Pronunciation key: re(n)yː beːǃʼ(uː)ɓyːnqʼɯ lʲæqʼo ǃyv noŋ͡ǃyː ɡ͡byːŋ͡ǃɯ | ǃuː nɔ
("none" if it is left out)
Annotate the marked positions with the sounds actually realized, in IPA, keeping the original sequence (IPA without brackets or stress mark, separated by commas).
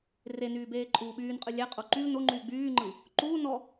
n, uː